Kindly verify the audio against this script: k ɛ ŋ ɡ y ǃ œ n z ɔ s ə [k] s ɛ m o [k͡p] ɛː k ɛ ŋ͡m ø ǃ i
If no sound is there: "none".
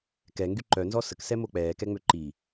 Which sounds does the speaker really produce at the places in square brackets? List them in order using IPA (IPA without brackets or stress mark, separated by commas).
k, k͡p